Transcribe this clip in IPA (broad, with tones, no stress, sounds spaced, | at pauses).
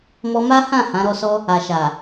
m ɔ˧ m a˦ h ã˦˨ h ã˨˦ ɾ ɔ˧ s ɔ˦ | a˨ ʃ a˨